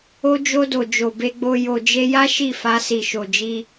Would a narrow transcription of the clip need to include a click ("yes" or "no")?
no